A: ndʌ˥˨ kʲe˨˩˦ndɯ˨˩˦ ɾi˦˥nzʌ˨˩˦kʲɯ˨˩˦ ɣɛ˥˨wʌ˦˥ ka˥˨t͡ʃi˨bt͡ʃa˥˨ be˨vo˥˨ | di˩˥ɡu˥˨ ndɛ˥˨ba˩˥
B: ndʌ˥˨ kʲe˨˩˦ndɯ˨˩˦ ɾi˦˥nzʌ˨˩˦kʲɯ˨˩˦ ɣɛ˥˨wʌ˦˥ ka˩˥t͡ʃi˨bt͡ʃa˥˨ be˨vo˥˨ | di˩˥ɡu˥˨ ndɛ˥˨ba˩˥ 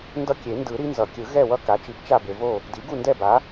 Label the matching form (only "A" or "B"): B